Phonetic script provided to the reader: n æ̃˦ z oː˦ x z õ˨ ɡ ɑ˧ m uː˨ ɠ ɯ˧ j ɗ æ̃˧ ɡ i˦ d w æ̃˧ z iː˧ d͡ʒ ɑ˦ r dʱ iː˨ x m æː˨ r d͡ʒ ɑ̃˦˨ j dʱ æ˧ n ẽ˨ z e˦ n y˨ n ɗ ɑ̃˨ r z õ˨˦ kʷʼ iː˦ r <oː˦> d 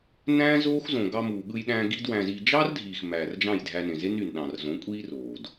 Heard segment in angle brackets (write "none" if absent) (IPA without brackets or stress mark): oː˨